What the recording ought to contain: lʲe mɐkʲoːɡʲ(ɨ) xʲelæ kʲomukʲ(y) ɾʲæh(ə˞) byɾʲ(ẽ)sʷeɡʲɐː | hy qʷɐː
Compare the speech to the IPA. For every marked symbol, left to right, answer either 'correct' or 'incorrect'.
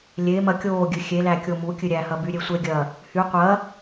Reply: correct, incorrect: ɨ, incorrect: ɐ, incorrect: e

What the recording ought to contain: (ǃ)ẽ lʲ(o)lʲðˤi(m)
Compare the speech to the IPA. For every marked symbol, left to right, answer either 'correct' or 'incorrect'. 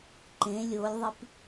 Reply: correct, correct, incorrect: p

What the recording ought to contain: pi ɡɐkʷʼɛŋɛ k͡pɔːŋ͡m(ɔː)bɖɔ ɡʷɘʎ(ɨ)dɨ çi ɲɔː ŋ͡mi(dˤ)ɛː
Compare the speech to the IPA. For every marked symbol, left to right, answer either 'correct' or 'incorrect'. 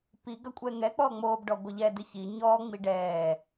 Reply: incorrect: oː, incorrect: ɛ, incorrect: ɖ

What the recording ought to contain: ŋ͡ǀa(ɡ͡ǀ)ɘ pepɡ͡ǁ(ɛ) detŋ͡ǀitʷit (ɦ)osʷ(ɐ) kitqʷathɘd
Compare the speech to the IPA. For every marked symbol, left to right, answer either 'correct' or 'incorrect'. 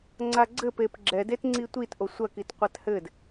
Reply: correct, correct, incorrect: ʔ, correct

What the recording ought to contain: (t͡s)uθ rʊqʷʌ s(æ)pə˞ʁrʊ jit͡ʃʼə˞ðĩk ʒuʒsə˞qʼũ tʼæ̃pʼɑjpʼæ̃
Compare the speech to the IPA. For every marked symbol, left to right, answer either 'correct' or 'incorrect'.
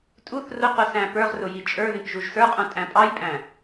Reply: incorrect: tʼ, incorrect: æ̃

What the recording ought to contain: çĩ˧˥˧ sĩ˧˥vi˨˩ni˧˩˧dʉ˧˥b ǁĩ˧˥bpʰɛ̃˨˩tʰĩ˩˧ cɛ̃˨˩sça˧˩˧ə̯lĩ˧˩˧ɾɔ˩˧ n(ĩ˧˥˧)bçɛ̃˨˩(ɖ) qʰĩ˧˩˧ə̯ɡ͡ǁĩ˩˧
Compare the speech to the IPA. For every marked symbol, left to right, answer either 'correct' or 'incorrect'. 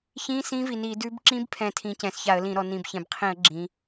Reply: incorrect: ĩ˨˩, incorrect: b

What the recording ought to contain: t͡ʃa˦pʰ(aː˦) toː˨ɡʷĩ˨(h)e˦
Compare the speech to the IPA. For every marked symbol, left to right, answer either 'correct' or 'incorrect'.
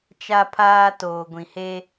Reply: correct, correct

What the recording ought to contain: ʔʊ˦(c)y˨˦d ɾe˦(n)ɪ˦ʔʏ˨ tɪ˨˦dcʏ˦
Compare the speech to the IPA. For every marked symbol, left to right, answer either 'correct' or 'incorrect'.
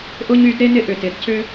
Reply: incorrect: ɲ, correct

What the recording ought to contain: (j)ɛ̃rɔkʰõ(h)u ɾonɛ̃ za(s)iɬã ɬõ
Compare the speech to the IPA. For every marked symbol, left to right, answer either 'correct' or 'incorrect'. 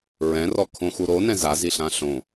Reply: incorrect: ɹ, incorrect: x, incorrect: z

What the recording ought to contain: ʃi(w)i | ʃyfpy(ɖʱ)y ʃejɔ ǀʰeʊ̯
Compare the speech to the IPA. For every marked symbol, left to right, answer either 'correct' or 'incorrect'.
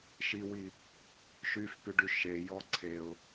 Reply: correct, incorrect: ɖ

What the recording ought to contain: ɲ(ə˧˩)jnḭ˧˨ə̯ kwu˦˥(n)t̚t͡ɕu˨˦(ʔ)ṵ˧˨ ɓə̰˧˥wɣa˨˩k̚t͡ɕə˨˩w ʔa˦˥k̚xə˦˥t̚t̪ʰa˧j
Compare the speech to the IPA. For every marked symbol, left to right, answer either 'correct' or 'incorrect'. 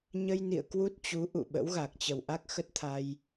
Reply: incorrect: ə˧, incorrect: none, correct

